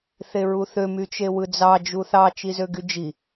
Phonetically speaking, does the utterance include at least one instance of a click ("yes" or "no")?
no